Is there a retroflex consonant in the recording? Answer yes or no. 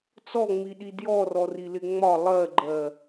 no